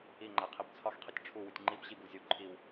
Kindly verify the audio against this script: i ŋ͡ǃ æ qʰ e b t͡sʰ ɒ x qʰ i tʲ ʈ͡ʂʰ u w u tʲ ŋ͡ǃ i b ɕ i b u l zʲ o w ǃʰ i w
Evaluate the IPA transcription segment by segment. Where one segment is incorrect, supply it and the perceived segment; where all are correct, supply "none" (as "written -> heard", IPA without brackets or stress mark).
none